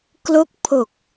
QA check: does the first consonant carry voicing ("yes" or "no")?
no